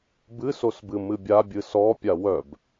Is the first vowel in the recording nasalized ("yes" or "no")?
no